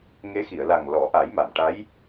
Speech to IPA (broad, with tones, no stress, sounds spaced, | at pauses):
ŋ e˧˥ x i˨˩˨ ə̯ l a˨˩ ŋ l ɔ˨˩˦ ʔ a˨˩˦ j m a˨˩˨ m ʈ a˧˥ j